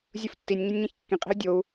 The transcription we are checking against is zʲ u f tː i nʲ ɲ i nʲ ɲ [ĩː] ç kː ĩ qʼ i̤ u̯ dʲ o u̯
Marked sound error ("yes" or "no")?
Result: yes